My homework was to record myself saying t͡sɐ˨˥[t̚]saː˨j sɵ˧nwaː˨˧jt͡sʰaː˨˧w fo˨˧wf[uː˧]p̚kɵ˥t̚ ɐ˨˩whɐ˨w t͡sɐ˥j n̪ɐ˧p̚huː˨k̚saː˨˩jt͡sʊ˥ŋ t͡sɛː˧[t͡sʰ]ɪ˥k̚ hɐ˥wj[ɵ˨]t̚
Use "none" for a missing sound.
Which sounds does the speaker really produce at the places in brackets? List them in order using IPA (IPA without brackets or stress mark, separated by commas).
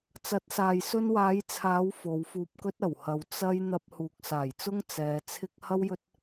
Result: t̚, uː˧, t͡sʰ, ɵ˥